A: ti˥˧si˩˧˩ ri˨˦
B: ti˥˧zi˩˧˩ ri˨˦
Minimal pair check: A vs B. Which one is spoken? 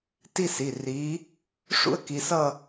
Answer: A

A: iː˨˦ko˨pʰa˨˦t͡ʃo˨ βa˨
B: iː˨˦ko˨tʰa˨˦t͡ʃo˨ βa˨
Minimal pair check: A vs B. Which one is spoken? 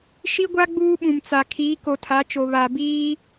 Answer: B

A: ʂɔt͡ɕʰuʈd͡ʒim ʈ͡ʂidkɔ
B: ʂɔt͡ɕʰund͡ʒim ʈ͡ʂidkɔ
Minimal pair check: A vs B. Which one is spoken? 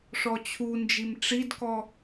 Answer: B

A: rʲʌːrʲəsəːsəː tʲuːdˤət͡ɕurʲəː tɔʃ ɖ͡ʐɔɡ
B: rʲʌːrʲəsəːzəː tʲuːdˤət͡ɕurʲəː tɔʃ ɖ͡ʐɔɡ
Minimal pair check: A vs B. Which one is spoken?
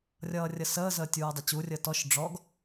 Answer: B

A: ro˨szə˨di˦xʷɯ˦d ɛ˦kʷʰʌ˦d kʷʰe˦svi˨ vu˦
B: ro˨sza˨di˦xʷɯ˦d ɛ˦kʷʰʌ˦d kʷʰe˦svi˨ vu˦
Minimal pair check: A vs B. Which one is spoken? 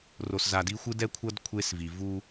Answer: B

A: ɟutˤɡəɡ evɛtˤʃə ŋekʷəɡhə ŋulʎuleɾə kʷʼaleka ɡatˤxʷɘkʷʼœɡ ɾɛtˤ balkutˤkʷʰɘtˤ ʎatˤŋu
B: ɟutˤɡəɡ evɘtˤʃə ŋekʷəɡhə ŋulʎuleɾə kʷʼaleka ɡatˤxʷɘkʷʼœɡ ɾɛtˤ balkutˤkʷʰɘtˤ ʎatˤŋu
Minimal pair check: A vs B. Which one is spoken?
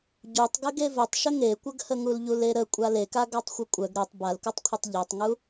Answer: B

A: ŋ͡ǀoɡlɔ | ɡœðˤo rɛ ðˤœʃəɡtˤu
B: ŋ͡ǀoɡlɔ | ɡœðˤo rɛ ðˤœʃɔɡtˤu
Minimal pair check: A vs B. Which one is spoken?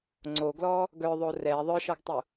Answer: B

